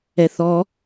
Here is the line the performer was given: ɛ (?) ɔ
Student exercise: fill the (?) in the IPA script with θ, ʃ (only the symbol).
θ